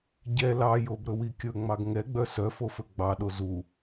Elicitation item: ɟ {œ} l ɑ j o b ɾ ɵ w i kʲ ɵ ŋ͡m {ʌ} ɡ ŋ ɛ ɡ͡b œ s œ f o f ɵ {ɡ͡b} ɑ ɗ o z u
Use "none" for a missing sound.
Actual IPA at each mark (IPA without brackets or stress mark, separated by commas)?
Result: ɛ, ɑ, ɡ͡b